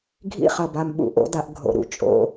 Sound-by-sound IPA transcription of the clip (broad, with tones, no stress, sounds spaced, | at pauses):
ɡʱ ḭ˦ χ ɐ˨ b a˨ m ɓ ṵ˨ ʔ o̰˦ d a˦ ʔ ɡʱ o̰˨ ɾ ṵ˨ t͡ʃʼ o̰˦